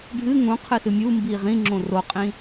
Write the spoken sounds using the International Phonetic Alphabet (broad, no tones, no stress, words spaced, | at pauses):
ɖʱɨ ŋũqʰɨsɨ mʲumbi ʁĩŋ͡ǁõ roqʼĩ